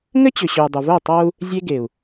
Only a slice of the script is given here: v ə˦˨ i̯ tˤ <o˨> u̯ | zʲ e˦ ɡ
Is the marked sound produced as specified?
no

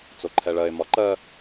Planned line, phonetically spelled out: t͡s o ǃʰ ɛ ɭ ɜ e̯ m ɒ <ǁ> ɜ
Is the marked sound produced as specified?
no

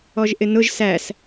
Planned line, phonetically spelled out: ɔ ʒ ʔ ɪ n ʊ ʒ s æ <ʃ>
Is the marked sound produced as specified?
no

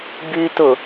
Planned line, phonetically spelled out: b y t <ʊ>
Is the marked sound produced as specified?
yes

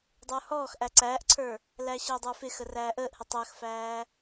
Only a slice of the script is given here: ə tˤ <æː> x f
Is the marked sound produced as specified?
no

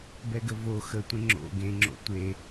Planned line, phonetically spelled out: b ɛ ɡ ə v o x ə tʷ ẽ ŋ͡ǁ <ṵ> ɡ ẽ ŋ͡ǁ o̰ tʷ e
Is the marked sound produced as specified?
no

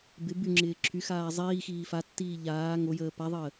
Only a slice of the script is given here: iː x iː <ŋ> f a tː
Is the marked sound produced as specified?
no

